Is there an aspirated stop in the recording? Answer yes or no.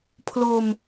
yes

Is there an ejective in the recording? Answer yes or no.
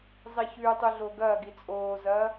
yes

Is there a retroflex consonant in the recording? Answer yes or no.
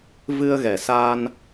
no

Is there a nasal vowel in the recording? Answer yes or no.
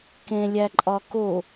yes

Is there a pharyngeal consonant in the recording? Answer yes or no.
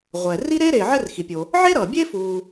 yes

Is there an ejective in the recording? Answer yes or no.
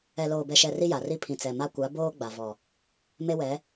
no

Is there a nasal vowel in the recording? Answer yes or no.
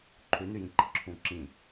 yes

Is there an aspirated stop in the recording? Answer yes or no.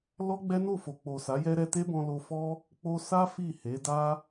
no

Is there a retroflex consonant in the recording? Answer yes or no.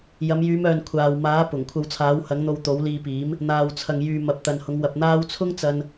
no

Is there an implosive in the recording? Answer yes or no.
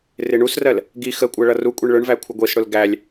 no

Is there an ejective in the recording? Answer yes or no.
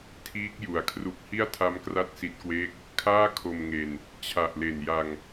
no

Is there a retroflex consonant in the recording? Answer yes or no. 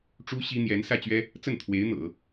yes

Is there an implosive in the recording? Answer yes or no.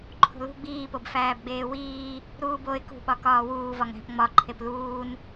yes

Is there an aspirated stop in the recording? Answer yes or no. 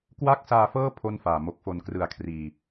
yes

